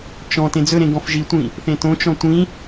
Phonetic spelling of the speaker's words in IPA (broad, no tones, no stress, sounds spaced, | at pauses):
t͡ʃ ɔ̃ t ẽ d͡z ɵ ɾ ẽ ɡ ɔ̃ f ʒ i tʷ ĩ | θ ẽ t õ t͡ʃ ɔ̃ tʷ ĩ